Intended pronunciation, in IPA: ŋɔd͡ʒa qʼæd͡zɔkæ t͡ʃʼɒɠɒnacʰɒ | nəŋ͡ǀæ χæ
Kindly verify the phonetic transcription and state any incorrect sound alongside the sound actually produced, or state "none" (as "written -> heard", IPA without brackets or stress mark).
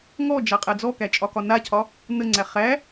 ɠ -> k